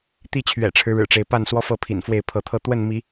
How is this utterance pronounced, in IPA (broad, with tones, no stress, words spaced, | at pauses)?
t̪i˥˨t͡ɕʰɥɛ̰˨˩ʈ͡ʂʰɻ̩˦ɻɻ̩˨˩ ʈ͡ʂe˨˦ɪ̯ pa˥˨nswɔ˦fɤ˥˨ pʰḭ˨˩n fwe˥˨ɪ̯pʰɤ˥˨ t̪ʰɤ˥˨ t̪wə˥˨nmi˨˦